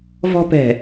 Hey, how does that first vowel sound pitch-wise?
high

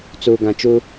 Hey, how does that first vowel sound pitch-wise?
low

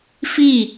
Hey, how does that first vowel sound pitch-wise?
falling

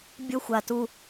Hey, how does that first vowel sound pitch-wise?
high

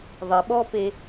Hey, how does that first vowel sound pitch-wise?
low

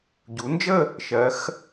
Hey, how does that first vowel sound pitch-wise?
rising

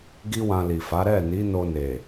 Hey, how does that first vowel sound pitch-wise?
high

